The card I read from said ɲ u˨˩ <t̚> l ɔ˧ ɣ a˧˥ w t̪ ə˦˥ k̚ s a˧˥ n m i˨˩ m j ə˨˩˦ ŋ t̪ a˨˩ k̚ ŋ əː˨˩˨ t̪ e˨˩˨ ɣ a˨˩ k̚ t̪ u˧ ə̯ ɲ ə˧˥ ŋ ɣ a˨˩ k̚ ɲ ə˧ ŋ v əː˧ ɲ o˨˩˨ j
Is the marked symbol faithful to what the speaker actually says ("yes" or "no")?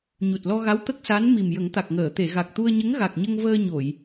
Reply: yes